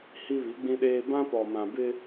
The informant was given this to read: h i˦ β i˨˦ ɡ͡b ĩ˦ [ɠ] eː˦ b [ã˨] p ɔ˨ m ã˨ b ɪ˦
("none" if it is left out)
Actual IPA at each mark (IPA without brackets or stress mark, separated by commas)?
ɗ, ã˦